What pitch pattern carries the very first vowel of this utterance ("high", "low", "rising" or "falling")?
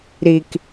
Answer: low